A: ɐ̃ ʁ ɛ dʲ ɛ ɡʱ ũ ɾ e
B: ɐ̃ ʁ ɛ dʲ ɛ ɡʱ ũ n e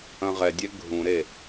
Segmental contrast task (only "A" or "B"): A